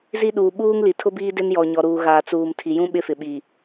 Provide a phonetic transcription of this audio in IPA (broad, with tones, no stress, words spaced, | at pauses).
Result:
zi˦ɗuː˨ ɓuː˦ŋli˨ tʰʊ˦biː˦ dɪ˦njɔ˨ ɲɔ˨ɾuː˨ɣaː˨ t͡suː˨mtʰi˨jũ˦ ɓɪ˦fɪ˨ɓiː˨